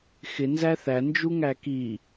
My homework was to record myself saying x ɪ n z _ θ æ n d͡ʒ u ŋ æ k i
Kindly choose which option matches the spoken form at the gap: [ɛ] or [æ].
æ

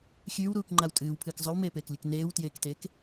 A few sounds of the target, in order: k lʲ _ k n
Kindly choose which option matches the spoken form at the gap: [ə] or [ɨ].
ɨ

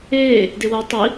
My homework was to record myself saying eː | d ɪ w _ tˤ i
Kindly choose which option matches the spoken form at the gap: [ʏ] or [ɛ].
ɛ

